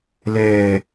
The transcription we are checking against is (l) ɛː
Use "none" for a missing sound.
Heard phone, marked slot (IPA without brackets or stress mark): l